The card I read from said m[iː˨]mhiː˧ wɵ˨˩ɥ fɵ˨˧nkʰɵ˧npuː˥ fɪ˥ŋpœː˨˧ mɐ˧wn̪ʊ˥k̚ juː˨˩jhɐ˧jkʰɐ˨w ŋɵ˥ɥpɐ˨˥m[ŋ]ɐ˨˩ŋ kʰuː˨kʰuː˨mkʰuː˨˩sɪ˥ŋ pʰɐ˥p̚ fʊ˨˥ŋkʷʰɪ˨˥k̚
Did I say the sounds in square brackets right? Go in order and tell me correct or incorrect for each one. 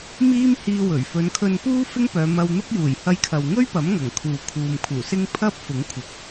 incorrect: iː˥, correct

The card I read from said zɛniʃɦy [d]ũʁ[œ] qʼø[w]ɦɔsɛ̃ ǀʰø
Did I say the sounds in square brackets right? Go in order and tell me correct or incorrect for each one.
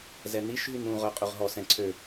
incorrect: n, correct, incorrect: ʁ

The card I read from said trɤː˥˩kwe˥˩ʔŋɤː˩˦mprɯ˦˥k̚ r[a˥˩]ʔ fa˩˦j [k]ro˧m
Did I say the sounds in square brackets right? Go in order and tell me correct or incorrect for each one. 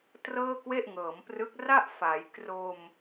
correct, correct

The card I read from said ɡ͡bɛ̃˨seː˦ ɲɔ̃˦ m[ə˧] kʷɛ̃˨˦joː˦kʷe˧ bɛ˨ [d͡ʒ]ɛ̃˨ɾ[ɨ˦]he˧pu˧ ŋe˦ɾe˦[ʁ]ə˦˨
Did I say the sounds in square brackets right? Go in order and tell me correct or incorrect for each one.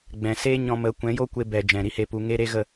incorrect: ə˨˦, correct, incorrect: i˦, incorrect: ɣ

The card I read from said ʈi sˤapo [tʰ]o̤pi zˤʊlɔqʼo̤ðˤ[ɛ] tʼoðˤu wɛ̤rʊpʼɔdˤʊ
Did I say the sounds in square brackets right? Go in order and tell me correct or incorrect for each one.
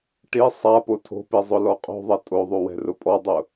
correct, correct

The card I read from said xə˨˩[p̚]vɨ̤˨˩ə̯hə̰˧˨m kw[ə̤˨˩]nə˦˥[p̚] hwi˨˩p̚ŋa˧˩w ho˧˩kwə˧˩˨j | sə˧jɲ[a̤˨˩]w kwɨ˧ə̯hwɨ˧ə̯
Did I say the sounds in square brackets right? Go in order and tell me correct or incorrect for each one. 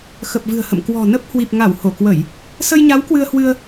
correct, incorrect: ɔ̤˨˩, correct, incorrect: a˨˦

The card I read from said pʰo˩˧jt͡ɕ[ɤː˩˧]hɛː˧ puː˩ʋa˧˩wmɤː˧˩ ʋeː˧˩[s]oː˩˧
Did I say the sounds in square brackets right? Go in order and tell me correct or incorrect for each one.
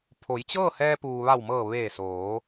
incorrect: ɤː˥˨, correct

